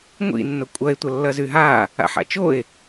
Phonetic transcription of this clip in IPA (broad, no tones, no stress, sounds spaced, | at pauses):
ŋʷ ḭ nː ʊ kʷʼ ɐ e̯ tʷ ɐ lː ɐ z y ɦ a | a̰ ħ a̰ t͡ʃ o e̯